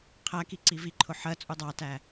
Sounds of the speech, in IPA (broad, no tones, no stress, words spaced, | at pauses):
qʰæki ǀiviǃʰʊ ħɜ t͡sʼudˤɑtæ